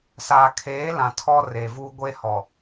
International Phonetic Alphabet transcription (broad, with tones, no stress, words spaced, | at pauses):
saː˨kʰeː˨˦lã˨ tʰɔ˦re˨vuː˦ ɡʷe˦hɔ˨